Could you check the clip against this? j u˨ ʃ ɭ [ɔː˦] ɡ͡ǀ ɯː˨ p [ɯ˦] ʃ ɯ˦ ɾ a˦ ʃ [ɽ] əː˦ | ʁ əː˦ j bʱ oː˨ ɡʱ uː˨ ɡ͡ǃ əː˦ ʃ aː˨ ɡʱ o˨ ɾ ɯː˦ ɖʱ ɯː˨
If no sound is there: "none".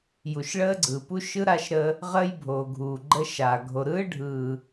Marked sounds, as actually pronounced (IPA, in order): əː˦, u˦, ɾ

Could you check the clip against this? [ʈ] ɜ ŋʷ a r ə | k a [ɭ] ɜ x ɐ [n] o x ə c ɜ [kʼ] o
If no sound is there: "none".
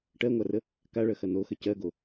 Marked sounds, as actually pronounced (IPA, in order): ʈ, ɭ, n, ɡ

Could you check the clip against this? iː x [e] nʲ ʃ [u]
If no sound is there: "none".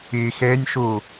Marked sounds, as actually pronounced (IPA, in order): eː, u

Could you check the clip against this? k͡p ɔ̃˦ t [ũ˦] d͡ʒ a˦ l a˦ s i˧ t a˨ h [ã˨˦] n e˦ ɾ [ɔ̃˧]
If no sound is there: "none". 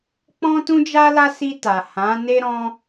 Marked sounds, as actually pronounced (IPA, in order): ũ˦, ã˨˦, ɔ̃˦

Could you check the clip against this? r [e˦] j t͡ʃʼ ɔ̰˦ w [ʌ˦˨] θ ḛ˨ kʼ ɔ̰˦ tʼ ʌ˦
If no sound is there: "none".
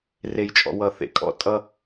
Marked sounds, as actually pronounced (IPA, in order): e˦, ʌ˦˨

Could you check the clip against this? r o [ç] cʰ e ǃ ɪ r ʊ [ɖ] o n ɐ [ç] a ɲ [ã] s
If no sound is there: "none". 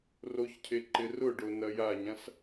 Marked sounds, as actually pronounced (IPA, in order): ç, ɖ, j, ã

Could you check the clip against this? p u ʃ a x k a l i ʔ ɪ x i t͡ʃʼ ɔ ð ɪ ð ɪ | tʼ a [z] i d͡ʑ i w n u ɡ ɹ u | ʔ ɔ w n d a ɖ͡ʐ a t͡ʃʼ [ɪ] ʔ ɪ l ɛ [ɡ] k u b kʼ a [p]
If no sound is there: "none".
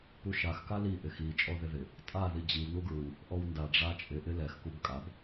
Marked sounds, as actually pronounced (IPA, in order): ð, ɪ, x, b

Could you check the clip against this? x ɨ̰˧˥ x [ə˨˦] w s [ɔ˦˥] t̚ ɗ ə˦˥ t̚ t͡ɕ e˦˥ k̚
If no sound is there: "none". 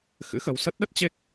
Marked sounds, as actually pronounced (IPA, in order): ə˨˦, ə˦˥

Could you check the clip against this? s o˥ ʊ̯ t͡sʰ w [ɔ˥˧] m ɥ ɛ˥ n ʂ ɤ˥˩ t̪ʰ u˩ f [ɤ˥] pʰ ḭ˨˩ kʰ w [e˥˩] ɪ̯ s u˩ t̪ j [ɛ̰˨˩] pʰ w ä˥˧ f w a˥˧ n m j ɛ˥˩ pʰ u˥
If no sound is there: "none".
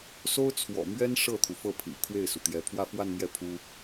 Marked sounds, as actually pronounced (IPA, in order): ɔ̰˨˩, ɤ˥˩, e˥˩, ɛ˧˥

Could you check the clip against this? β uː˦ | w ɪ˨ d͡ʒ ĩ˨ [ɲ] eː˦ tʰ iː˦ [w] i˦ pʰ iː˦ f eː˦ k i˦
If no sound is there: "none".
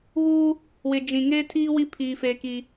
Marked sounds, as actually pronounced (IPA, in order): ŋ, w

